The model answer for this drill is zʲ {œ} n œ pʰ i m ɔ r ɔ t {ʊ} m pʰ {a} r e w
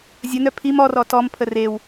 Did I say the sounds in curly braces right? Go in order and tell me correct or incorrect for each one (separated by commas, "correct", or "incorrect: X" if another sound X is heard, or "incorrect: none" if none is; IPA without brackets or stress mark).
incorrect: ə, incorrect: ɔ, incorrect: ə